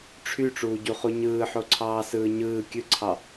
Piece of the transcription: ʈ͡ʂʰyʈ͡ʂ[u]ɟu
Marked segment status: incorrect: uː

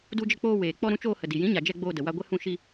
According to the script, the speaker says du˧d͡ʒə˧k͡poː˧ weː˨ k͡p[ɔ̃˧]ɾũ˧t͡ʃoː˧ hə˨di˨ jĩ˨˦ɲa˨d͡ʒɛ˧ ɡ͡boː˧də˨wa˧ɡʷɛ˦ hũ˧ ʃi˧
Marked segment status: incorrect: ɔ˧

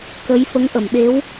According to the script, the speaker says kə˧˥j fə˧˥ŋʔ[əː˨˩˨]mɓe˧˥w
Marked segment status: incorrect: ə˨˩˨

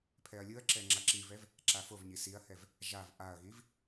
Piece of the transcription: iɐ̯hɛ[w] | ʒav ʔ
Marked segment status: incorrect: v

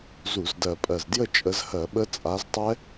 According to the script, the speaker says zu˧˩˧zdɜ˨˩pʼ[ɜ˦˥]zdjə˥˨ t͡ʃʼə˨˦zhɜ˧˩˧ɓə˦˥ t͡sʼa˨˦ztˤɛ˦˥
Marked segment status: incorrect: ɜ˨˩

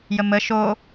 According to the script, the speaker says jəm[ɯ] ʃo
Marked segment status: incorrect: ə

